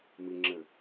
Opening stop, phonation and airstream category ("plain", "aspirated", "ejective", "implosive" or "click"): click